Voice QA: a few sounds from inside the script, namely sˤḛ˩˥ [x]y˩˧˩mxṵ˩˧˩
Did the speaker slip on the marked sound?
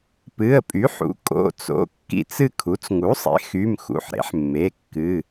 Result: no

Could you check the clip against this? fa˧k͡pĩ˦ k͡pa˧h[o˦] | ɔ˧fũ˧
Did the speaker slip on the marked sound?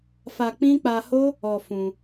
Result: no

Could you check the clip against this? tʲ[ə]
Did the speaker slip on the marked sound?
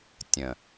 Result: yes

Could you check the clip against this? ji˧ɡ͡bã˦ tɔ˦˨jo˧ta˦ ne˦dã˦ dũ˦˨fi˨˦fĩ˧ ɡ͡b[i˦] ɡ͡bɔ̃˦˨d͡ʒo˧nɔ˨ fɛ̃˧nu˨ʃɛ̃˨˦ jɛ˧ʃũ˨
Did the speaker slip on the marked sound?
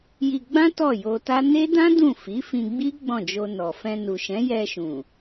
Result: no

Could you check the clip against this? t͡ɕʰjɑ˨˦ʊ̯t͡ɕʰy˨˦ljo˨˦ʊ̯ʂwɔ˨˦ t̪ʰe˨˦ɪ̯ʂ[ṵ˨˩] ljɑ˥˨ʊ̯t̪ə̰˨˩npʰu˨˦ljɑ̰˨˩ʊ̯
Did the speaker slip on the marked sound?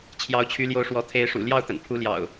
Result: no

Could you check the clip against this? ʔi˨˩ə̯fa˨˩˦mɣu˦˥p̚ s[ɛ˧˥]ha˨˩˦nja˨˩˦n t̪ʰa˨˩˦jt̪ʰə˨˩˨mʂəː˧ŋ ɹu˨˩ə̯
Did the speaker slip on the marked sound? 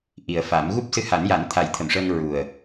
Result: yes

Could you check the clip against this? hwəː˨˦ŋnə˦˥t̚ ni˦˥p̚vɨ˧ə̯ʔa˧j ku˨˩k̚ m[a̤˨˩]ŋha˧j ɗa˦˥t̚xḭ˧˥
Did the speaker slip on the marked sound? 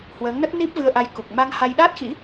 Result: yes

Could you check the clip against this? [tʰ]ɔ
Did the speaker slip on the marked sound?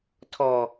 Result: no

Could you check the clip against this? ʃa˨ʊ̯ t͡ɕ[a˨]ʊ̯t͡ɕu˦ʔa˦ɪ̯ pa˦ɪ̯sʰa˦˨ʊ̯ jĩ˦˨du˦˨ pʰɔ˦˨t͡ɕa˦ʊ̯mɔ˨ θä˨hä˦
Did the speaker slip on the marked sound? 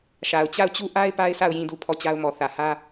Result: yes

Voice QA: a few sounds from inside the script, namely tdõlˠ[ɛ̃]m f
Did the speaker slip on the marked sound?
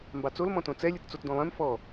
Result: no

